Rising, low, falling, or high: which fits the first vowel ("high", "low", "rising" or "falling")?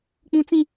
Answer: high